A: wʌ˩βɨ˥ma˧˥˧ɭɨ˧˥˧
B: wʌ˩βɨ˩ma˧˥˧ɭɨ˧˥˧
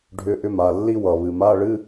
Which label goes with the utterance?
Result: B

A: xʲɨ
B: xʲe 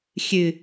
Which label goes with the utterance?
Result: A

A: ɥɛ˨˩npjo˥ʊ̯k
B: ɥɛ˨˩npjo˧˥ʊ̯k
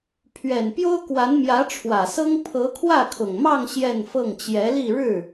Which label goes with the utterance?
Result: A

